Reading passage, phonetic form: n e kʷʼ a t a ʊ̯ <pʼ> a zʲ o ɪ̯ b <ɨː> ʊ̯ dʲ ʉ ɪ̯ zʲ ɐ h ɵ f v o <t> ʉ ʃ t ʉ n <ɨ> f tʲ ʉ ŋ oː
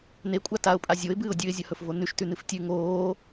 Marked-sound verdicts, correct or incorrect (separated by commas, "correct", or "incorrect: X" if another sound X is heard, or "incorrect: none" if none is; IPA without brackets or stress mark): correct, correct, incorrect: n, correct